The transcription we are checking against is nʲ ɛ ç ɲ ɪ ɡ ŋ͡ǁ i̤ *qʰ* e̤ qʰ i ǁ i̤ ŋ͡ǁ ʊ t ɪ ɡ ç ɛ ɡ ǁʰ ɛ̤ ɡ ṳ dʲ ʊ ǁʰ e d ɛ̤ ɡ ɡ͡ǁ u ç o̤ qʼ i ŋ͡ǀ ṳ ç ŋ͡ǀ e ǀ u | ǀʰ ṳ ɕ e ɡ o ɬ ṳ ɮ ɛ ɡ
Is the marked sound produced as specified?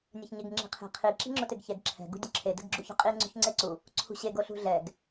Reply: yes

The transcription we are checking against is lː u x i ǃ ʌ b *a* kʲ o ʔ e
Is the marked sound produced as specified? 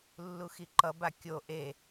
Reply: yes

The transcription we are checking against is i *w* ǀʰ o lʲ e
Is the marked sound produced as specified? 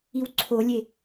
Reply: yes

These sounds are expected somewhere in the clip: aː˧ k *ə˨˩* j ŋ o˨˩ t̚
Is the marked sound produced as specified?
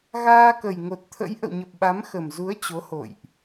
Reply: yes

